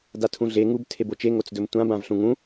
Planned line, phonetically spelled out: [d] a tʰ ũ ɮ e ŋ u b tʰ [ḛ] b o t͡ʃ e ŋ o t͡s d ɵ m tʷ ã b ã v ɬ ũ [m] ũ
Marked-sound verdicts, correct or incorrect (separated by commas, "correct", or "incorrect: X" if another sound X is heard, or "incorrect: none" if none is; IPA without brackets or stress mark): correct, incorrect: e, incorrect: ŋ